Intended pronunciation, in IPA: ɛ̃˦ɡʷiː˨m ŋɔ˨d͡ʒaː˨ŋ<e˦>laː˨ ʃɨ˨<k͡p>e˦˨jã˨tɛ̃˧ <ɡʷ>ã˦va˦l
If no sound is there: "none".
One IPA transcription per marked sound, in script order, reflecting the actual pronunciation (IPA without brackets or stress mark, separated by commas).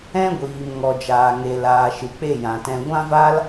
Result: e˨, k͡p, ɡʷ